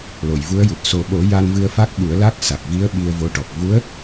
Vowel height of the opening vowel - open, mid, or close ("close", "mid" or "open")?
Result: mid